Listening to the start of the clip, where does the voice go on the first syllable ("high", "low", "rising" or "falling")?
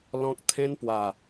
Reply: high